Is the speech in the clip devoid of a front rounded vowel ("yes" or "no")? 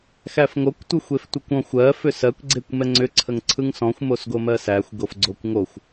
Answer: no